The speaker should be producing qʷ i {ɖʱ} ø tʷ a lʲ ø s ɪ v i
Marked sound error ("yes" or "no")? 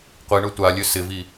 yes